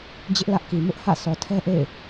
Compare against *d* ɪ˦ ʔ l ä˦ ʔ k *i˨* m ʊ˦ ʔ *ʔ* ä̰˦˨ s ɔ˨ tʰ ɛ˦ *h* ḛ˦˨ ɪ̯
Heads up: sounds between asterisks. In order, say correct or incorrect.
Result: incorrect, correct, incorrect, incorrect

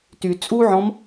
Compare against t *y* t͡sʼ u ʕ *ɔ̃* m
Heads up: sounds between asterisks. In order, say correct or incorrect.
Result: correct, correct

